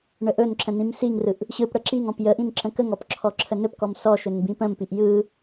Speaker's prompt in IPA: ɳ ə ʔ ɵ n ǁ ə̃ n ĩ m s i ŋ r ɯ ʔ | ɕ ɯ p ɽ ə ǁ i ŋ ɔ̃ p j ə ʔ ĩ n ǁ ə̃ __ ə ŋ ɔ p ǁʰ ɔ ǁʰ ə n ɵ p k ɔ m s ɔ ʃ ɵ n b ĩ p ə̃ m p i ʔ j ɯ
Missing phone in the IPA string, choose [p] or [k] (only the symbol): k